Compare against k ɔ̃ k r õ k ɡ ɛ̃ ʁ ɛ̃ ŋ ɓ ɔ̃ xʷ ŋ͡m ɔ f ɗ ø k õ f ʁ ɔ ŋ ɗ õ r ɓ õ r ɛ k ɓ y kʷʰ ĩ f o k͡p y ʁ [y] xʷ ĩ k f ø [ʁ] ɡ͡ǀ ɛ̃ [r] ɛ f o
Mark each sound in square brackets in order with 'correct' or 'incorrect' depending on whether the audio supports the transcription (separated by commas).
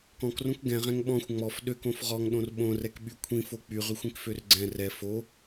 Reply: correct, incorrect, correct